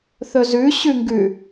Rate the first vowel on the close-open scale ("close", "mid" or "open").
mid